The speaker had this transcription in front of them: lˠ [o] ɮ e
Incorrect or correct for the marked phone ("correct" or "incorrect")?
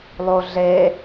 correct